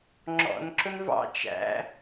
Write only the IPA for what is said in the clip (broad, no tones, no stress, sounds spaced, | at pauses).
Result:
ŋ͡ǁ ɔ̰ n ǁ ʊ n v ɑ̰ t͡ʃ æ̰